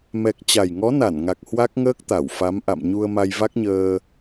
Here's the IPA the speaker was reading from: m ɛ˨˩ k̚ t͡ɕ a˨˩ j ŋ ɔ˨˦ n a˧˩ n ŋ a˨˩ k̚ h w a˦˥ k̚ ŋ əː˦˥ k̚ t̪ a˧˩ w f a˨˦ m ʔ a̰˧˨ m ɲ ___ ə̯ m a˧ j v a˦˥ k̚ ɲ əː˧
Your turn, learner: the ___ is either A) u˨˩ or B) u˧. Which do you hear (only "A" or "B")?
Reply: B